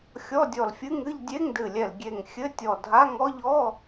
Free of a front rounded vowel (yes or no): yes